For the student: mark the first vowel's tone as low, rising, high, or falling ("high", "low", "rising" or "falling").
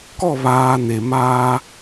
falling